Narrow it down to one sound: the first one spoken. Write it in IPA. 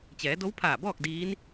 t͡ɕ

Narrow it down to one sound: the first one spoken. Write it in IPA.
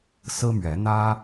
s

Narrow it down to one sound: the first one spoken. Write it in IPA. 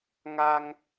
ŋ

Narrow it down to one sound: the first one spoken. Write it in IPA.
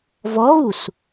v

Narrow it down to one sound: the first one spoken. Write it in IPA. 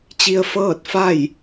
t͡ɕ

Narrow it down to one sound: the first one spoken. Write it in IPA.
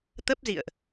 t̪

